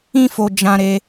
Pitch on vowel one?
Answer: high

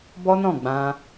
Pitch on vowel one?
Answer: high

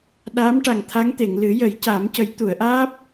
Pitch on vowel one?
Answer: rising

